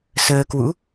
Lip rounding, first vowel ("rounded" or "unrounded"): unrounded